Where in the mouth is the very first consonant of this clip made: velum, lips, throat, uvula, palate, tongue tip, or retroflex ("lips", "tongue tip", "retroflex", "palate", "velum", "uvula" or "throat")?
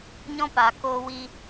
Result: palate